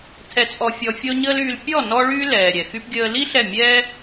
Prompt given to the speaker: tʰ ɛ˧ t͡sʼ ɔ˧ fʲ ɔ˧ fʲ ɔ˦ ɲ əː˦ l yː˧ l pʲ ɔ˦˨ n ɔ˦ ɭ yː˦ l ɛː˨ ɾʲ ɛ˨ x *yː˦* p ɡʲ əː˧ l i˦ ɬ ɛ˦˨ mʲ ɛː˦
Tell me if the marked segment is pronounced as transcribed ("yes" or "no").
no